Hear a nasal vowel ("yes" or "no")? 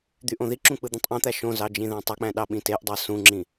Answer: yes